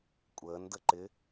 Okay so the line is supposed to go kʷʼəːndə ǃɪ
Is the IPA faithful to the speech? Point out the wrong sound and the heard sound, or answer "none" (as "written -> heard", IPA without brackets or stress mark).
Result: none